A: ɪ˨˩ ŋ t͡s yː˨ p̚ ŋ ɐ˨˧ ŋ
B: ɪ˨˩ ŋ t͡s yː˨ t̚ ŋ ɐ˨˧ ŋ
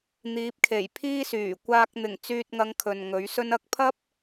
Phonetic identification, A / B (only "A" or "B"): B